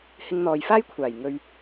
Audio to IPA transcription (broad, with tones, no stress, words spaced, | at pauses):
hɪ˧ŋn̪ɔː˨jfaː˥j kʷʰaː˨˩j ŋɵ˧ɥ